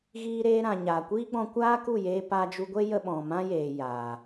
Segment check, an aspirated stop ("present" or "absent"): absent